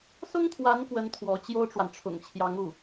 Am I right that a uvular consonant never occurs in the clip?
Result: yes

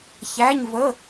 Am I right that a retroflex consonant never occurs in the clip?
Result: yes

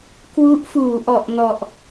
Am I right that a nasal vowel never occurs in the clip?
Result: yes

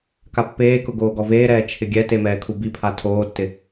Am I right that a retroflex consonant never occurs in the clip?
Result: yes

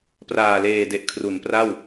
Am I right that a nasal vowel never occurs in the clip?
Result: yes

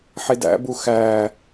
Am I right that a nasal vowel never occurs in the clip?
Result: yes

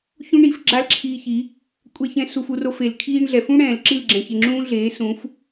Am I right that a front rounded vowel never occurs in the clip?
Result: yes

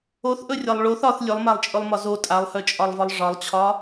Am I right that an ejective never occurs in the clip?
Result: no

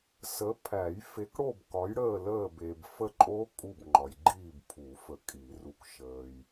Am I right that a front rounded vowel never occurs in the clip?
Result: yes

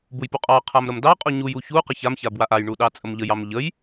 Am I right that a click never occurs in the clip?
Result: yes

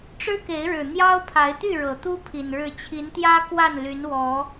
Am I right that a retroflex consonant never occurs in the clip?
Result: no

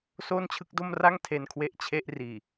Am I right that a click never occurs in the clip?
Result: yes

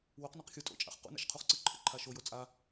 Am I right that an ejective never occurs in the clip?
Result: no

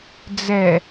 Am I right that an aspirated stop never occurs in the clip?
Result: yes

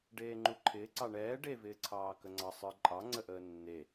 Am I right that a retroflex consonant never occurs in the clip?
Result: no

